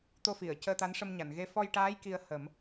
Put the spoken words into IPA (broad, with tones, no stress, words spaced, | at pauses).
t̪o˧fi˨˩˨ə̯ cəː˧t̪a˧˥n ʂə˧mɲa˨˩˨nɣe˧˥ fɔ˧jʈaː˧˥j ki˧ə̯hə˨˩˦m